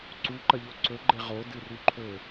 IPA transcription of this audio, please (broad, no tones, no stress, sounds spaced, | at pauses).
ǀ u ǃ ɐ ʎ o ǀ ɵ ɡ͡ǃ e ʁ o d ɨ r ʉ ǃʰ ɵ